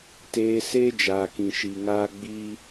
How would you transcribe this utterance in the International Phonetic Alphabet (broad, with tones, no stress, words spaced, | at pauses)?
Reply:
teː˧ seː˦d͡ʒaː˨kĩ˨ ʃi˨ŋaː˧ ɡ͡bi˦